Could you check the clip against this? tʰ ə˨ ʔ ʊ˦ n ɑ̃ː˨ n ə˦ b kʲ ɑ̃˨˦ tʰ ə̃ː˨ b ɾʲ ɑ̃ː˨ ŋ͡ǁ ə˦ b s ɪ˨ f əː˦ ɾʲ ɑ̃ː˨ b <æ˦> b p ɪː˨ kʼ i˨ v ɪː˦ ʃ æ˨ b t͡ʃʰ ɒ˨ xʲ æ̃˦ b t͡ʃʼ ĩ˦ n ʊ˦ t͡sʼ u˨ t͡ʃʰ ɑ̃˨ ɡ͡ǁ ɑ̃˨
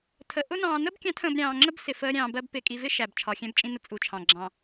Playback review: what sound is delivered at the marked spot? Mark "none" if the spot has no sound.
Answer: ɜ˦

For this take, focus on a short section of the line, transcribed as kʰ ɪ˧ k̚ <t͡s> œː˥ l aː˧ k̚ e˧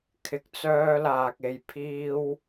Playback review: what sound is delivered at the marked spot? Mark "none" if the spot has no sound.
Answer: t͡s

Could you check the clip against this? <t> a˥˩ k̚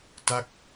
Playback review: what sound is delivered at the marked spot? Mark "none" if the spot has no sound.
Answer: t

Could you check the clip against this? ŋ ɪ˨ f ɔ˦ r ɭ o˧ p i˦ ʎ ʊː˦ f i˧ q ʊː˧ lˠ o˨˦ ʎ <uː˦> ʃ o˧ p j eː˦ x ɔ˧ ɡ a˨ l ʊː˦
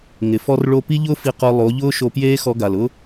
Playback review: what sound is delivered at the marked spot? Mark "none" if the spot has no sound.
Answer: ʊː˦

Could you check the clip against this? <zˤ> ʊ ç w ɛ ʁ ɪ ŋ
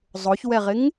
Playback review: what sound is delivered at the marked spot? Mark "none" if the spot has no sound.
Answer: zˤ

